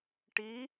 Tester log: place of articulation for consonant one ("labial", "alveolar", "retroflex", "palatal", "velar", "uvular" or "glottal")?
retroflex